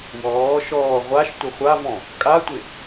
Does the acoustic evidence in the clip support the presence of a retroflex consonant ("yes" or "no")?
no